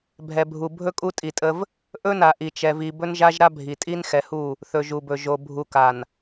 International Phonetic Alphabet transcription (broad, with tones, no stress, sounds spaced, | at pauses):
bʱ ɛ˨ bʱ u˨ bʱ ɵ˦ kʼ u˦ tʼ i˨ tʼ ə˦ v | ʔ ɵ˦ n a˨ ʔ i˨ t͡ʃ ɛ˨ v i˨ b ɵ˦ n ʒ a˦ ʒ ɾ a˦ bʱ i˨ tʼ i˦ n x ɛ˨ h u˦˨ | θ ɵ˨ ʒ u˨ b ɵ˨ ʒ o˨ bʱ u˨ k a˨ n